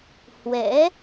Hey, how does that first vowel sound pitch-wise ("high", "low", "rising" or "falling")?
rising